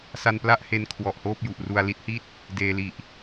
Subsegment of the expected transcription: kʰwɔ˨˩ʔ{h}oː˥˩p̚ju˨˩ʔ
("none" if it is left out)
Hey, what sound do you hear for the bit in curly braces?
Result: h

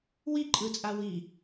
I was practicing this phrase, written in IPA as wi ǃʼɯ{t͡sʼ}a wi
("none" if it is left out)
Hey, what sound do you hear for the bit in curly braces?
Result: t͡sʼ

